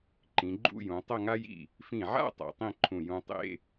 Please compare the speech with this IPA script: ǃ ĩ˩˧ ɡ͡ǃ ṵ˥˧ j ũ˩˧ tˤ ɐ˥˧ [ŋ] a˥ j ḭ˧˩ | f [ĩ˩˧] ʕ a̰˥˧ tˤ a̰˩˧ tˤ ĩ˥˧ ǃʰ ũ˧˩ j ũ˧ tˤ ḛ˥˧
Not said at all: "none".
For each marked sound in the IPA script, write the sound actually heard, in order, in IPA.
ŋ, ĩ˧˩

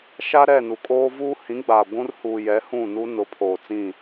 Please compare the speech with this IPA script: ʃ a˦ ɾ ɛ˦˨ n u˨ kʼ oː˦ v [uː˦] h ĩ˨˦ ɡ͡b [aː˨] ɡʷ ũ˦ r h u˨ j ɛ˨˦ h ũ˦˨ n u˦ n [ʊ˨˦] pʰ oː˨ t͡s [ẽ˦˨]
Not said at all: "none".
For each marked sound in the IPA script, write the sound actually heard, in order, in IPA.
uː˦, aː˨, ʊ˨˦, ĩ˦˨

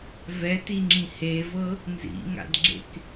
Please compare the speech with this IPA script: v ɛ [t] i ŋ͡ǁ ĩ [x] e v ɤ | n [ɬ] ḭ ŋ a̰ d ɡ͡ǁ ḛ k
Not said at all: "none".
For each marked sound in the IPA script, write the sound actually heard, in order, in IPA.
t, h, z

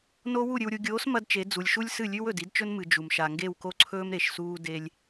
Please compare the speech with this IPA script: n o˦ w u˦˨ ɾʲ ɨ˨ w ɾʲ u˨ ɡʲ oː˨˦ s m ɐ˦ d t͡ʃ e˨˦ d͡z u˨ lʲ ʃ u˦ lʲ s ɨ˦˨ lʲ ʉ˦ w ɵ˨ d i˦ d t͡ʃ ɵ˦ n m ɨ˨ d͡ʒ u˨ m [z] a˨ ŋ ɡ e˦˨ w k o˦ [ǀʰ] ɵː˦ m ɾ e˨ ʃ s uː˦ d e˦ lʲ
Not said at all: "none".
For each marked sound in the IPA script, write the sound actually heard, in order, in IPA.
ʃ, ǀʰ

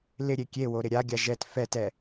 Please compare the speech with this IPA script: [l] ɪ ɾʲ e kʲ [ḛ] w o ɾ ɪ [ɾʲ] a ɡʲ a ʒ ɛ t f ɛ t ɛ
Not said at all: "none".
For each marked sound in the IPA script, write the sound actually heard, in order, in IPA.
l, e, ɾʲ

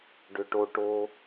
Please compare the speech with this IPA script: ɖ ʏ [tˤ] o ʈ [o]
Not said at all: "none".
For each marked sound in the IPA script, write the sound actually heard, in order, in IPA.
ʈ, o

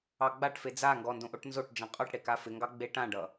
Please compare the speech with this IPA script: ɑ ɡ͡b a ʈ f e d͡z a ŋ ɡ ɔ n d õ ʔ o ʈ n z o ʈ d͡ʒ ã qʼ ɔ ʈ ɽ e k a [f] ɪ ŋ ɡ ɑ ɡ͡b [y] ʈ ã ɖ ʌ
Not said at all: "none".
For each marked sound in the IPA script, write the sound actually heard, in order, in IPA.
f, e

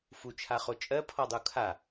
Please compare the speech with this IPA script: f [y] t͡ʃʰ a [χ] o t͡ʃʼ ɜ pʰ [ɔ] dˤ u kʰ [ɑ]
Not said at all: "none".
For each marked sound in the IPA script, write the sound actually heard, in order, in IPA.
u, χ, ɔ, a

